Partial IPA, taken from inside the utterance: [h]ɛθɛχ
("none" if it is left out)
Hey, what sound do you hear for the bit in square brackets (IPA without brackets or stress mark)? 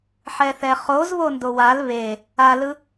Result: ħ